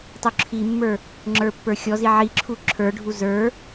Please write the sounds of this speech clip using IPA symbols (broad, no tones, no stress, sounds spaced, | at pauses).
tˤ u ǁʰ i mː ə˞ | ŋ͡ǁ ə˞ pː ə˞ xʲ ɔ z i ʕ i ǁʰ u ǁʰ ə˞ ɖʱ u z ə˞